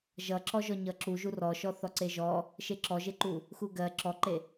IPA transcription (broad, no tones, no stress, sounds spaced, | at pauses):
ʒ ʌ ǁ ɔ ʒ ɔ ɲ ʌ ǁ u ʒ u r ɔ ʃ ɔ θ ɔ ǀ e ʒ ɔ | ʃ e ǁ ɔ ʒ e ǃ u | x u ɡ ɜ ǁ ɔ ǃ e